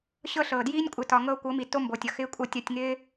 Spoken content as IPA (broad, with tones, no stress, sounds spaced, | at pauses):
ɕ ɤ˦˨ ɬ ɤː˨ d j iː˦ nʲ kʷʼ ɪ˨ t ɒ˨ ŋ ɤː˧ kʷ ɤ˨˦ m i˨ t o˦ m b o˨ tʲ ʌ˨ x ɪː˦ kʷʼ ɤ˧ tʲ ɒ˧ tʲ ŋ ɪː˦